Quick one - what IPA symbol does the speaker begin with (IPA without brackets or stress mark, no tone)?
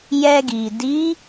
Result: j